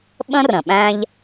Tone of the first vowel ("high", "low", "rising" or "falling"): high